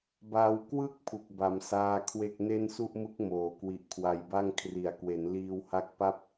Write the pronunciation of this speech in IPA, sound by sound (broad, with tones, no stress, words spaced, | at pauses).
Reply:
ba˧wkwɯ˥˩k̚ pʰu˨˩k̚ba˩˦msaː˧ kʰwe˥˩k̚ ne˥˩nsu˥˩ʔmɯ˦˥k̚ moː˩˦kwi˨˩ʔ kʰwa˨˩jba˥˩ŋ kʰri˩˦a̯kwe˩˦nliː˧wha˦˥k̚ pa˥˩p̚